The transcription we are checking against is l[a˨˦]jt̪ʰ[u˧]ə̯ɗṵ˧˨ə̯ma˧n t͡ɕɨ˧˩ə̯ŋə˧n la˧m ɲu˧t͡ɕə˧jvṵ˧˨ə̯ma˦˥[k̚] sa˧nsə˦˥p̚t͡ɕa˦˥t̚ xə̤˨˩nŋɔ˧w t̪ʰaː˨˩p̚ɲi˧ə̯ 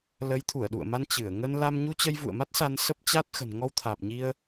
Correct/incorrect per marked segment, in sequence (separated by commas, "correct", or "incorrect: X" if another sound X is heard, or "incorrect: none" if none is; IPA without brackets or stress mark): incorrect: ə˨˦, incorrect: u˧˩, incorrect: t̚